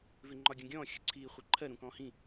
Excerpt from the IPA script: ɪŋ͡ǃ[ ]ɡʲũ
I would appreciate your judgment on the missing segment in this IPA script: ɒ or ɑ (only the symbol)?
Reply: ɒ